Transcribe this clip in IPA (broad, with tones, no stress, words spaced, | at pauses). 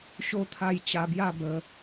ɕo˧t̪ʰa˧j t͡ɕa˧bja˥˧ bə˧